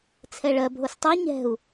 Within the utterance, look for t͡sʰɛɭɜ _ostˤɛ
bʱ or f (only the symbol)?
bʱ